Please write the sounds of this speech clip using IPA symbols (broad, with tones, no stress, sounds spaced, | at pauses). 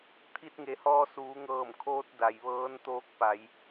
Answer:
t̪ʰ i˧ t̚ ŋ e˩˧ h ɔː˧ s uː˩˧ ŋ ɤː˧˩ m kʰ oː˧ t̚ d a˩ j ʋ ɤː˧˥ n t̪ oː˧˥ k̚ p a˩˧ j